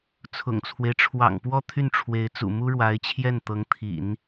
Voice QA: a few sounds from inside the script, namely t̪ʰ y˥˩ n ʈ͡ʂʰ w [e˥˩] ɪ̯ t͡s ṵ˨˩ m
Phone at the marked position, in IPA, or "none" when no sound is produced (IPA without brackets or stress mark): e˧˥